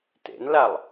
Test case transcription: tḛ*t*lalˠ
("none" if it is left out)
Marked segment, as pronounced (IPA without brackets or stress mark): n